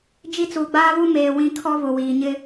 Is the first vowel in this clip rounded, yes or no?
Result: no